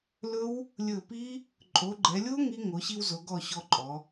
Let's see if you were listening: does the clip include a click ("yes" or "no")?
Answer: yes